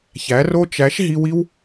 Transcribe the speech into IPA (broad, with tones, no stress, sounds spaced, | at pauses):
ç æ˨˦ r o˦ t͡ʃ æ˨˦ ʃ ɦ i˧ w i˦ w